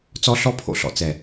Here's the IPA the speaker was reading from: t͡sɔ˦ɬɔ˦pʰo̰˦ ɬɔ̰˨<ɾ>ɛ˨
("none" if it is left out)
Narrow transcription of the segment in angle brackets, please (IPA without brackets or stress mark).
t͡s